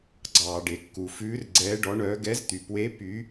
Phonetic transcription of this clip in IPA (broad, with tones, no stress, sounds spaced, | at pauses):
ɡ͡ǀ ɑː˩ ɖ e˩ kː u˩ f ʉː˨˦ r ɡ͡ǀ ɛː˨˦ ɖ ɔ˨˦ ɳ œː˨˦ ɡ ɛ˨˦ z t̪ y˩ p w e˨˦ p y˨˦